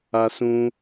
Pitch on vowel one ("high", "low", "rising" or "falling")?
high